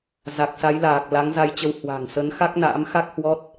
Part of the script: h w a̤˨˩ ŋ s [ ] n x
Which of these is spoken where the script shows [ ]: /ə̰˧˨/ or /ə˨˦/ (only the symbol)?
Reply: ə˨˦